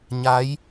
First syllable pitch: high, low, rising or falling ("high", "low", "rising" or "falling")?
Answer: rising